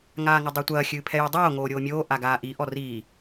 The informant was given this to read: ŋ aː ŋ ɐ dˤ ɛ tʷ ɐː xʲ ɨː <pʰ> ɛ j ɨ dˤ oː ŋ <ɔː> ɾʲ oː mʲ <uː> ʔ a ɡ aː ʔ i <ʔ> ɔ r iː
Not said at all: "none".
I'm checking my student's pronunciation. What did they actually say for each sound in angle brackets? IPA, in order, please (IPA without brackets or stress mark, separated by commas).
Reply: pʰ, oː, oː, ʔ